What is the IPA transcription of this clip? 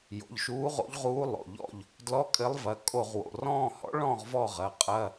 j o̰˩˧˩ ʎ ʃ uː˧˥ ʁ o̰˧˥ ʎ ʁ uː˧˥ lˠ o̰˩˧˩ ʎ ɔ̰˦˨ ʎ | d l ɔ˧˥˧ kʼ ɘ˧˥ lˠ v ɐ˩˧˩ kʼ o˦˨ ʁ w o̰˩˧˩ r ɔ̃ː˦˨ h ɔ̰˧˥ ɭ ɔ̃˦˨ ʁ v ɔ˦˨ ʁ ɐ˩˧˩ qʼ ɐ˧˥˧

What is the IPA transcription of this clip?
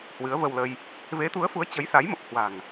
h w ɨ˨˦ ə̯ v ə˧ w l ə˧ j | v e˨˦ t̪ u˨˦ ə̯ f u˨˦ ə̯ t͡ɕ ə˨˦ j s a˨˦ j m ə˨˩ p̚ h w a̤˨˩ ŋ

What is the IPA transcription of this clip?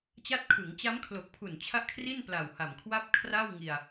t͡ɕ a˦˥ t̚ kʰ ɯ˩˦ ŋ t͡ɕ a˦˥ m kʰ l o˨˩ k̚ pʰ u˨˩ n t͡ɕʰ a˥˩ ʔ kʰ r i˥˩ n p l a˨˩ w h a˨˩ m kʰ w a˥˩ p̚ kʰ r a˥˩ w ŋ i˧ a̯

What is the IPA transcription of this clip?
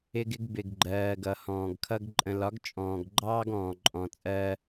ɪ˦ ɡ ɪ˦ ɡ b ɪ˨ ɡ ɡ͡ǃ ɜː˨ ɡ ʌ˨ h ɔ̃ː˨ ɡ kʰ ʌ˦ ɡ ǃʼ ə̃˨ l ɒ˨˦ ɡ t͡ʃʼ ɔ̃ː˨ ɡ ɡ͡ǃ ɑː˦ ɡ ɔ̃ː˨ ǃʼ ɔ̃˨ t͡sʼ ɜː˦

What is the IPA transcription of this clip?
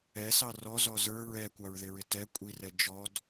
ɛ s ɑ r ɔ z ɔ z ə˞ ɹ ɛ kʷ ɑ ɹ ð ɪ ɹ ɪ t ɛ kʷʼ i r ɛ d͡ʒ ɔ d

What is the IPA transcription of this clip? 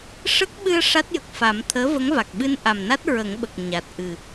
ʂ ə˦˥ k̚ ɓ ɨ˧ ə̯ ʂ a˦˥ t̚ j ə˨˩ k̚ f a˨˩˦ m t̪ʰ əː˧˥ v ə˧˥ ŋ v a˨˩ k̚ ɓ ɨ˧ n ʔ a˨˩ m n a˦˥ t̚ ɹ ə˨˩˦ ŋ ɓ ə˨˩ k̚ ɲ a˨˩ t̚ ʔ ɨ˨˩

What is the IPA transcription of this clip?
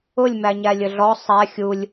ʊ lʲ m æ ɲ æ lʲ ə ɮ ɔ sˤ æ xʲ u lʲ

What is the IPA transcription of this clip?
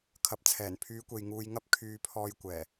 kʰ ɐ˨˥ p̚ t͡sʰ ɛː˨˩ n pʰ yː˨˧ kʷ e˨ j ŋ uː˧ j ŋ ɐ˥ p̚ kʰ yː˧ pʰ ɔː˧ j kʷ ɛː˨˩

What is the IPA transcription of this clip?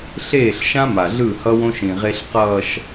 ɬ eː˦˨ ɬ ʃ ã˦ m a˨ ɮ ɯ˦˨ h ʌ˦ w õ˦ ʃ ĩ˨ ʁ e˦ ɬ q ʌː˨ ʃ

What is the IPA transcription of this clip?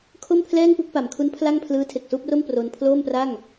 kʰ o˥˩ m pʰ l ɛː˥˩ ŋ p u˥˩ k̚ p a˩˦ m kʰ u˦˥ n pʰ l a˥˩ ŋ pʰ l ɯː˦˥ tʰ e˨˩ k̚ s uː˥˩ p̚ r o˥˩ m p r o˧ n pʰ l oː˥˩ m p r a˥˩ ŋ

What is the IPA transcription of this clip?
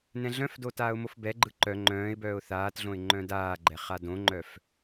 n ɛ̃ ɮ œ̃ f d o t aː ʊ̯ m o f b ɛ ɡ͡ǃ ɯ ǃ œ ŋ͡ǃ œ̃ː ɪ̯ b œː ʊ̯ θ aː t ɮ õ ɪ̯ ŋ͡ǃ œ̃ d aː ɡ͡ǃ ɛ χ a d õ ŋ͡ǃ œ f

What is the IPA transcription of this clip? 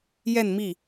j ɛ˥˧ n m i˥˩

